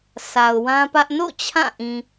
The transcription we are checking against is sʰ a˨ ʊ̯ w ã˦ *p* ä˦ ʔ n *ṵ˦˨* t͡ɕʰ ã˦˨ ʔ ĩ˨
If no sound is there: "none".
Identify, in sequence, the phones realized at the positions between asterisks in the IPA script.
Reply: p, o̰˦˨

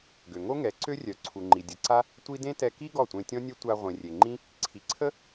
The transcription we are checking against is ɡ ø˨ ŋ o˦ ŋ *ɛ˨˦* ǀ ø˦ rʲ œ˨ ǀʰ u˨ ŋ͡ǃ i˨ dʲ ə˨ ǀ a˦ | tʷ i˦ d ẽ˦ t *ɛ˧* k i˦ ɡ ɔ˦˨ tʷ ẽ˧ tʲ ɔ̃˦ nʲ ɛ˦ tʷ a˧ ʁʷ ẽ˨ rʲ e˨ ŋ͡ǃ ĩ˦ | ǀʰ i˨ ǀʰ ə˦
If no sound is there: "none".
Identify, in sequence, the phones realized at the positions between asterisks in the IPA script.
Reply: ɛ˨˦, ɛ˧

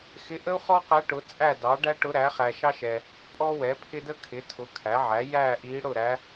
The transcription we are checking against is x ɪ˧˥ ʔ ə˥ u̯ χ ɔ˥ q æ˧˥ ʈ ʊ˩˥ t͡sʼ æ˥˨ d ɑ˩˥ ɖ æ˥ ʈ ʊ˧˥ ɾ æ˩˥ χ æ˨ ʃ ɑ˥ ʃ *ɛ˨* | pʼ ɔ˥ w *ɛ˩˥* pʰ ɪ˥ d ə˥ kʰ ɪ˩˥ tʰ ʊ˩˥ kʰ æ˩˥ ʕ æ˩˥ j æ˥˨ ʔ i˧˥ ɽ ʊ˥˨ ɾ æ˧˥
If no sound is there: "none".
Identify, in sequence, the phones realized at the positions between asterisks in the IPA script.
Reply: ɛ˨, ɛ˩˥

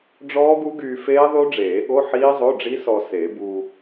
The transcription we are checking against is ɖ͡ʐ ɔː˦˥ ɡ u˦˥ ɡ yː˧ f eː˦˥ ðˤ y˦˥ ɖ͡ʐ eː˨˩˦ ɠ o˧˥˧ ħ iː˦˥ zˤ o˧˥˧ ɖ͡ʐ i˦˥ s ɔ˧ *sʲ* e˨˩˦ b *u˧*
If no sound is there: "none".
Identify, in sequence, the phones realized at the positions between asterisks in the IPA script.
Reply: s, u˧

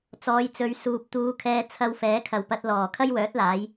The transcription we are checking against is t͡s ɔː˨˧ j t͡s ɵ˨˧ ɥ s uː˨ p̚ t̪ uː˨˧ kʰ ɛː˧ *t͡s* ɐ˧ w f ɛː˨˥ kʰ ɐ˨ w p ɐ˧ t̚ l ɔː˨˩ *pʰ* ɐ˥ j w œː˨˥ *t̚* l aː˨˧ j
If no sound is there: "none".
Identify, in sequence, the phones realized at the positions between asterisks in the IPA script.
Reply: t͡sʰ, kʰ, t̚

